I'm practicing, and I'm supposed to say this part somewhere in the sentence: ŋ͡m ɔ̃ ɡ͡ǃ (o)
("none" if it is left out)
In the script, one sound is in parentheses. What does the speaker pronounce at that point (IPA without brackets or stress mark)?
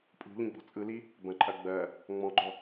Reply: ɔ